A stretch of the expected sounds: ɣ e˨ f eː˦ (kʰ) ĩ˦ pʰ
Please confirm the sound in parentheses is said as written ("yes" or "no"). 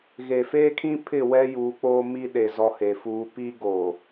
yes